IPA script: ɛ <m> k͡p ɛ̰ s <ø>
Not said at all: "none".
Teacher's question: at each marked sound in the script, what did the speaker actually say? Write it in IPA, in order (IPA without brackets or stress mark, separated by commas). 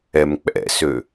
m, ø